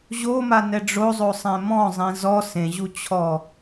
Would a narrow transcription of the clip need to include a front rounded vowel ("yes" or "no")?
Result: no